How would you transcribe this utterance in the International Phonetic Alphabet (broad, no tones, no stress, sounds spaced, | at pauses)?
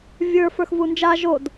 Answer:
vʲ ə˞ f ə˞ x v u n d͡ʒ a ʒ o d